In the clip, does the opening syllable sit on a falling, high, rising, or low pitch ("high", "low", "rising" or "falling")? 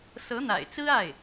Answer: rising